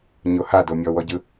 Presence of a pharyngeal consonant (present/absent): absent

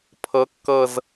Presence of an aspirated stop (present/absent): present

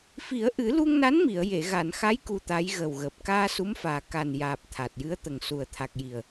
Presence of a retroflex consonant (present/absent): absent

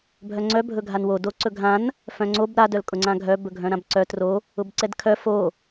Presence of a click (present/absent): present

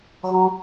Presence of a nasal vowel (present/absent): present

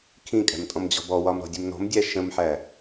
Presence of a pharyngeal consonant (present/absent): present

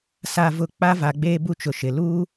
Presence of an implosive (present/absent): absent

